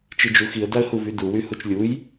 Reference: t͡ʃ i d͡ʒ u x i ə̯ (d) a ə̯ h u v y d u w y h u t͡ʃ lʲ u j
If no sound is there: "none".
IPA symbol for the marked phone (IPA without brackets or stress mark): d